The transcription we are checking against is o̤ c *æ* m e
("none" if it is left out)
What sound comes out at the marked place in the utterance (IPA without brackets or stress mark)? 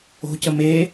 ə